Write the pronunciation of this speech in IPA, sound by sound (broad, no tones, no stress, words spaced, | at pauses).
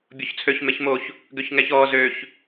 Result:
bʲoçt͡sʰøç meçmoç | ɡøçŋɛçɔː zøç